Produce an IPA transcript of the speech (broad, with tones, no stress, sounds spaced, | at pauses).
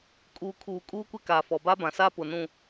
kʼ uː˨ kʰ uː˨ kʼ uː˦ kʷ ɪ˦ k a˨ f ɔ˨ b a˦ b ã˨ s a˦ p ʊ˨ n ũ˨